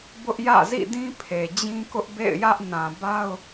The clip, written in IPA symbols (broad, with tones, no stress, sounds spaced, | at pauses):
b ʊ˦ ʔ j ä̰˦˨ z ḭ˦˨ d ĩ˦ pʰ e˨ d͡ʑ ĩ˦ k ʊ˦ ʔ b ḛ˦˨ ɪ̯ j ä˦ ʔ n ã˨ b a˦ ʊ̯